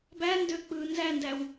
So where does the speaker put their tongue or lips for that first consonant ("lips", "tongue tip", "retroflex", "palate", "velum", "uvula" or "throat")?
lips